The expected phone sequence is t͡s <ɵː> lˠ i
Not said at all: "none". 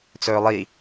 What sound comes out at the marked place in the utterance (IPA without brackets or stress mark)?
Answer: ɵː